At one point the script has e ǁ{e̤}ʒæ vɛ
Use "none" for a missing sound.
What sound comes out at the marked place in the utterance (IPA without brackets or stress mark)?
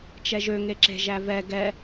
e̤